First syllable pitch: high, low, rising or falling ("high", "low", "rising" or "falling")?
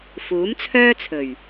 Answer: rising